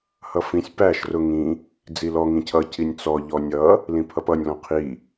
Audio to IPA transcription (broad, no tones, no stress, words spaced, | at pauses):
hʌfĩsʲ pæʃ rʊŋĩ | d͡zilɔ ŋĩcʰʌ cinʲt͡sɔ ʎɔnʲʌ | lĩpʰʌpʌnʲ lɔ̃qʰi